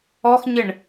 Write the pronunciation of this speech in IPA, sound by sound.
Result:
ɔ x ɲ ɪ ɳ

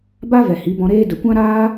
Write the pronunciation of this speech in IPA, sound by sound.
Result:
b a˦ v ɛ˨ h i˨˦ b ɔ̃˧ ɾ eː˦ d ə˨ kʷ ã˦ ɾ aː˦

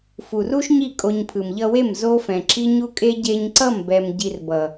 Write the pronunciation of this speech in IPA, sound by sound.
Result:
f u˨ r u˦ ʃ ɲ i˦˨ kʼ o˧ ɲ pʰ ɯ˨ m ʎ ʌ˧ w e˦˨ m z o˦ f ɛ̃˨ ǁ i˦ ɲ u˦ kʼ e˦ ɟ e˧ ɲ ǀ ʌ˦˨ m b ɛ˨ m ɟ i˧ r b ʌ˨

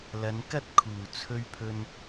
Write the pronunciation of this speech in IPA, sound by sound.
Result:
l ɐ˨˧ n k ɐ˥ t̚ kʰ uː˨˩ t͡sʰ ɵ˧ ɥ pʰ ɵ˧ n

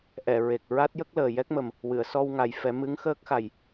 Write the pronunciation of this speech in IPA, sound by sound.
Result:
ʔ ɛ˨˩˨ ɹ e˨˩ k̚ ɹ a˦˥ t̚ j ə˦˥ k̚ l əː˨˩ j ɛ˦˥ k̚ m ə˨˩ m | w ɨ˨˩˨ ə̯ s ɔ˧ w ŋ a˨˩ j f ɛ˨˩˦ m ɨ˧˥ ŋ x əː˦˥ k̚ x a˨˩ j

